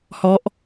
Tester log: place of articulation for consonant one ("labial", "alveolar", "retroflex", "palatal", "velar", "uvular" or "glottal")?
glottal